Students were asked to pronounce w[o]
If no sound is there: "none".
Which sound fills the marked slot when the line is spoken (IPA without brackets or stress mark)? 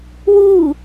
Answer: u